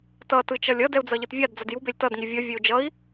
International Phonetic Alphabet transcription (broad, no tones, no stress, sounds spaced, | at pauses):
t ʌ t ɯ t͡ʃ ʌ lʲ ʌ d ɛ u̯ d͡z ʌ ʎ ɯ t vʲ a d d͡z ʌ d j u b e lʲ t ʌ d ŋ i vʲ ʌ vʲ e u̯ d͡ʒ ʌ i̯